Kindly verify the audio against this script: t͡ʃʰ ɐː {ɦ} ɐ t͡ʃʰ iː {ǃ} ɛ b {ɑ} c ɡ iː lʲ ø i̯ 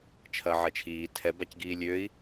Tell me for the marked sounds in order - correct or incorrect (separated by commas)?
incorrect, incorrect, incorrect